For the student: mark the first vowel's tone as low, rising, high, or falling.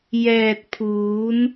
low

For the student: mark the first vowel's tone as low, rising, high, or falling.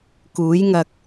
rising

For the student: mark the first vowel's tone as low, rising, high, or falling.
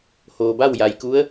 low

